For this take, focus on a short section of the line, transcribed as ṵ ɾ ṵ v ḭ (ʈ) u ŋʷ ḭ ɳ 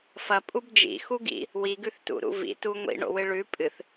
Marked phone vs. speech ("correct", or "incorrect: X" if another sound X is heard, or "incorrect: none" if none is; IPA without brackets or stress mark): incorrect: t